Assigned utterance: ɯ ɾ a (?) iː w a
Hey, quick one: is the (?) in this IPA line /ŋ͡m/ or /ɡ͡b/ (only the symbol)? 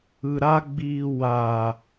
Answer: ɡ͡b